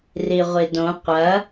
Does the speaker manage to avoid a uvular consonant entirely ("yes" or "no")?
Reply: no